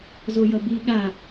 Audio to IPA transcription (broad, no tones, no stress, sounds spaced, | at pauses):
z o j ʌ b i ɠ a